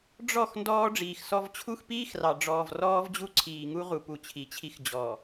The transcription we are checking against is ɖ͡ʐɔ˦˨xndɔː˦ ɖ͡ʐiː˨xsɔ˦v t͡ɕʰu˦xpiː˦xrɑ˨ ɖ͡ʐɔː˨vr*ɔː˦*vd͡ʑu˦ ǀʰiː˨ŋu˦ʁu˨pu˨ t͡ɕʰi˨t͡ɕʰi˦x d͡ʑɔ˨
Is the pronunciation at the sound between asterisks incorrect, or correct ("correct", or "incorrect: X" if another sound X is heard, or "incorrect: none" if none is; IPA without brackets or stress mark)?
correct